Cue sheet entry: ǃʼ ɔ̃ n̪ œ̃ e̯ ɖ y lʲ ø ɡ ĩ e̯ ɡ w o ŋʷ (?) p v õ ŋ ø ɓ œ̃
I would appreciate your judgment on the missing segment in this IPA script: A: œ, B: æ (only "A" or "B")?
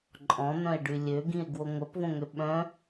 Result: A